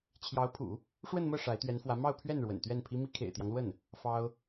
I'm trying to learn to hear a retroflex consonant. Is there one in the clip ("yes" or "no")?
yes